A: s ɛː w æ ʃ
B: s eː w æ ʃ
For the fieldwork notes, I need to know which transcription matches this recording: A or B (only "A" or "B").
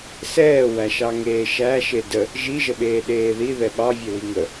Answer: A